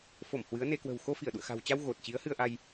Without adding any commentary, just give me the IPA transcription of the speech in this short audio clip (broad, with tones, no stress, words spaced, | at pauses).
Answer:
fo˧˩m hwɨ˨˦ə̯ne˧ kwə̤˨˩wxo˧ fi˧˩ə̯ɗṵ˧˨ə̯xa̤˨˩wt͡ɕa˧w ɣo˨˩t̚t͡ɕi˨˦ə̯hɨ˧ə̯ʔa˧j